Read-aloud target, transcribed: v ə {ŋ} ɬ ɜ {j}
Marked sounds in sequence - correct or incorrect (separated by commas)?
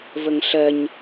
correct, incorrect